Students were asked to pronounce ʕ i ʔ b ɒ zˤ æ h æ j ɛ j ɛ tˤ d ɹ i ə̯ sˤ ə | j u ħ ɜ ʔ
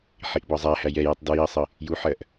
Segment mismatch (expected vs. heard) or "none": ʕ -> ħ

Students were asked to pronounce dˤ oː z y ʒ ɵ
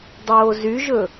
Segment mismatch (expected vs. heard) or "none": none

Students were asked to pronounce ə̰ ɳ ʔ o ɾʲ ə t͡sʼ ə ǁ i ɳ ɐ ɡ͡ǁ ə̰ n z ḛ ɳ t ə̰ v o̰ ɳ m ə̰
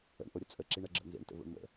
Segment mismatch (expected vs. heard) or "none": none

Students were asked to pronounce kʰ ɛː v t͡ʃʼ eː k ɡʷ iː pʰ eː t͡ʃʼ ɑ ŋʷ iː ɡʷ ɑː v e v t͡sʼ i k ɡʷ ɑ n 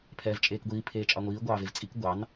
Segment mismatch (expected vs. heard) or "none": kʰ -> pʰ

